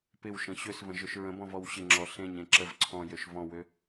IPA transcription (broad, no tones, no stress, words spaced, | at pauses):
pɪwʃə̃ ɕøsvə̃ʒøʃ ɹə̃bɔ̃vɔw ɕɪŋ͡ǁɔ ɬẽɲẽ ǁəv ǀʰɔ̃jøʃ vɔ̃wø